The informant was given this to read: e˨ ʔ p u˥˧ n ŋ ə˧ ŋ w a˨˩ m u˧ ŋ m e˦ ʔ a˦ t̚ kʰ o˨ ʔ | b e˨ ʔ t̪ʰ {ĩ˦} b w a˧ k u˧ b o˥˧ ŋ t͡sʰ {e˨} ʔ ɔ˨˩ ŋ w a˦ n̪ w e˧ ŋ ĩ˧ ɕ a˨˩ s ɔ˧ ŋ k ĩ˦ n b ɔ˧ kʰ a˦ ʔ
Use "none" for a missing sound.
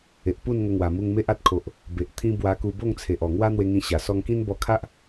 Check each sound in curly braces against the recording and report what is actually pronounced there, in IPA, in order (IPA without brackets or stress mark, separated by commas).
ĩ˦, e˨